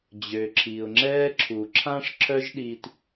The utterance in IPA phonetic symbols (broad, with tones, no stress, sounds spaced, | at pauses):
d͡ʑ ø˩ ǁʰ i˩ ʊ̯ ŋ͡ǁ ɛː˥ ǁʰ u˩ ǁʰ ã˥ ʂ ǁʰ œ˥ ʒ ɗ iː˧ t